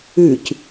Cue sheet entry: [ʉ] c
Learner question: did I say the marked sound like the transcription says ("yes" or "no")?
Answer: yes